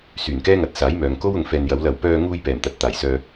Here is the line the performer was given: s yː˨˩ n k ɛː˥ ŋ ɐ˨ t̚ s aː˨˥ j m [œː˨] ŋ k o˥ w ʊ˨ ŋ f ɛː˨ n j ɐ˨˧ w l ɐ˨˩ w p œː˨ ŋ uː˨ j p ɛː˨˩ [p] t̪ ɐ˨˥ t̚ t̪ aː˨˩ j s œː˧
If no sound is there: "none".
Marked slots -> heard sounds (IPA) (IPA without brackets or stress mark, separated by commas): œː˨, m